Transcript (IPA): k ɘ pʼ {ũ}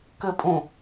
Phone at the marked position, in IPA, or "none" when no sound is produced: ũ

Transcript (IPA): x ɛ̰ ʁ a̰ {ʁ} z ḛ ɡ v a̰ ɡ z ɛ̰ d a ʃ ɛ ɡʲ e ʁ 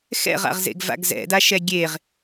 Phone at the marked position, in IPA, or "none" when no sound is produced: ʁ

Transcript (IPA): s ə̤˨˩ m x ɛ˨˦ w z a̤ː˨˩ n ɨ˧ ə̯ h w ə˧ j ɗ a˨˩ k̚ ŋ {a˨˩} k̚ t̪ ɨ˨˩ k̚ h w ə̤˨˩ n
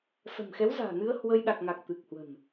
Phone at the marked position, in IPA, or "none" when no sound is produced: a˨˩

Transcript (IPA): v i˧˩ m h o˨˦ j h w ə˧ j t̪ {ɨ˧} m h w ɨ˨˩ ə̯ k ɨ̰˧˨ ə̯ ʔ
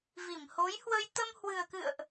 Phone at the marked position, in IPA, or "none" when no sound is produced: ə˧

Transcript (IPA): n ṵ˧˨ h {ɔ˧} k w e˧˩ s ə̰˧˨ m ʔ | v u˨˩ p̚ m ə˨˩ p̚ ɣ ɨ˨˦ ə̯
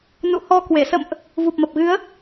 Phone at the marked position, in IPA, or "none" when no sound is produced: ɔ˧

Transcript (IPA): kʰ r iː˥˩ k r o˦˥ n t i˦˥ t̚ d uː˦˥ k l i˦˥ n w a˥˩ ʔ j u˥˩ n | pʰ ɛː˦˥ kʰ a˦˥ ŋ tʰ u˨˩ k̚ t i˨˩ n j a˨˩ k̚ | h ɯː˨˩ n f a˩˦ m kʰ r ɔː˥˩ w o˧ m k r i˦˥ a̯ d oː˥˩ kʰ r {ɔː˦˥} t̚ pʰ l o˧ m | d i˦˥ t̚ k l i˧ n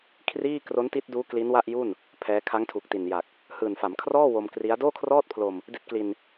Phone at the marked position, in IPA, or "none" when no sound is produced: ɔː˥˩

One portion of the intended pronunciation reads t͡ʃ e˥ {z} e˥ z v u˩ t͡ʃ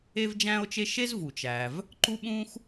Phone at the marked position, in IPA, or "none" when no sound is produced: ʃ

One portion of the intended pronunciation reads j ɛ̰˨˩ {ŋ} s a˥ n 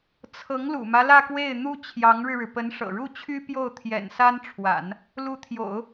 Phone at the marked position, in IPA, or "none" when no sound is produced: n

